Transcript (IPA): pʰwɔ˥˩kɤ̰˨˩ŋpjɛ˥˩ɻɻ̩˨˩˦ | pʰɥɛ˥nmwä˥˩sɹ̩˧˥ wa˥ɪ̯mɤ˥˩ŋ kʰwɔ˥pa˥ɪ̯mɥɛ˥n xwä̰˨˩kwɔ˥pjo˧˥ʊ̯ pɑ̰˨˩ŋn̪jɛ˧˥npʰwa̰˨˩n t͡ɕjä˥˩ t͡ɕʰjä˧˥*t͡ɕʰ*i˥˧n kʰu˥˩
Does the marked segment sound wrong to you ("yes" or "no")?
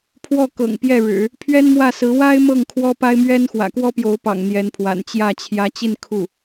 yes